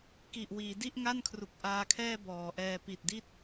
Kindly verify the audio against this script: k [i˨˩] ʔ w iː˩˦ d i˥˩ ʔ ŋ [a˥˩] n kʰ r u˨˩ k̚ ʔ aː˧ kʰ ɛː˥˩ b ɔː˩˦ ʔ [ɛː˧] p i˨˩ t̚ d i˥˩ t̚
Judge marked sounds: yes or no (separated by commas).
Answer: yes, yes, yes